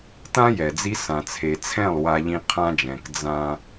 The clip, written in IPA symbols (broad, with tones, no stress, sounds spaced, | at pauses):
t ã˦ j ɛ˨ d͡z i˦ s ã˨ t͡sʰ e˨ t͡sʰ ɛ̃˦˨ lˠ w a˦ ʎ ĩ˦ qʰ ã˦ d͡ʒ ɛ̃˨ k d͡z ã˦